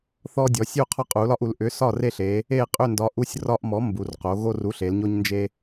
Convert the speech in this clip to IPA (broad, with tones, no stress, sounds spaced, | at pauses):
θ ɔ˦ dʲ ɔ˩˧ sʲ u˥˨ qʰ ɒ˦ qʼ u˩˧ l ɒ˦ ʔ u˩˧ l ʔ ʏ˨˥ s ɒ˥˨ r e˥˨ ɬ e˨˥ | e˥˨ qʼ ʏ˥˨ n d ɒ˨˥ ʔ u˦ sʲ r ɒ˦ ʔ m ɔ˨˥ m b u˩˧ r q o˩˧ ɣ o˦ r u˨˥ ɬ e˩˧ l ɲ o˦ ɲ n d͡ʒ e˦